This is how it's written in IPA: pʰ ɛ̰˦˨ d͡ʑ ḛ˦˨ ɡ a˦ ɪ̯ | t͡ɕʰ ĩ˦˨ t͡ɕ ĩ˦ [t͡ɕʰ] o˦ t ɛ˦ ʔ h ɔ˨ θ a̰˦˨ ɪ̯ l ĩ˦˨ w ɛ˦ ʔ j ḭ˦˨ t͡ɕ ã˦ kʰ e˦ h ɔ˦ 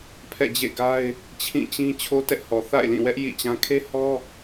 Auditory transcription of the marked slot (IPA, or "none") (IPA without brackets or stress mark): t͡ɕʰ